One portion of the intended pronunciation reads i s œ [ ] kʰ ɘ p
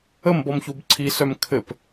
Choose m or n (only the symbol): m